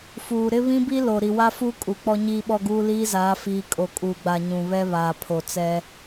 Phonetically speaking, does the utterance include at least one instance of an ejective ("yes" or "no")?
yes